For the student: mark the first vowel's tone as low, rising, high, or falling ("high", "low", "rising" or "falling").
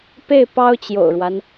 falling